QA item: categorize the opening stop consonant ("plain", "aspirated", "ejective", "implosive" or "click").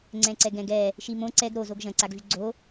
click